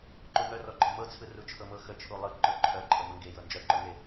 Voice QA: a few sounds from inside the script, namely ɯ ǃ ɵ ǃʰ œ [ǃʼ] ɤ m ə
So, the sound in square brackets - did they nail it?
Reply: yes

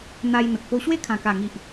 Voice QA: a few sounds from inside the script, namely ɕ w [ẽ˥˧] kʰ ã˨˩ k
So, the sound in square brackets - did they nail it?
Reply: no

